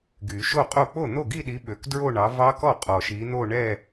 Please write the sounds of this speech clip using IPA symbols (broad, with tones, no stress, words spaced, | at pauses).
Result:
ɡy˨˩˦ʃo˥˧qʼo˥˩ k͡po˥˩n̪o˥˩ɡi˥˧ɗi˨˦ ɓø˨k dɹo˥˧ɳɑ˨˦vɑ˦˥kɔ˥˩ qʼɔ˨ʃi˨˦n̪o˥˧ ɳɛ˥˧